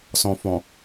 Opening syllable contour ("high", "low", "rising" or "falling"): low